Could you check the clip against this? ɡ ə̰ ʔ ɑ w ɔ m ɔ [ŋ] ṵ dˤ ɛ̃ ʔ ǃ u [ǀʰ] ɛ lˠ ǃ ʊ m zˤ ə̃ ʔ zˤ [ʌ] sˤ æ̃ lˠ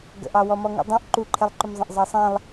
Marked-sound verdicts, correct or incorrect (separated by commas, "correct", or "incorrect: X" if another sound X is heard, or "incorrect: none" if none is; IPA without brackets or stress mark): correct, incorrect: ǃʰ, incorrect: ɑ